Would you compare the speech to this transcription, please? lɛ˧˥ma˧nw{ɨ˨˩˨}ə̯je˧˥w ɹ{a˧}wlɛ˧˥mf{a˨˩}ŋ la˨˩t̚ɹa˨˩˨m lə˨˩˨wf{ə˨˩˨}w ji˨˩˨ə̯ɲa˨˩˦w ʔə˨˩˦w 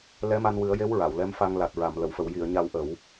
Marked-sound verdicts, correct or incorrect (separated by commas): incorrect, incorrect, incorrect, correct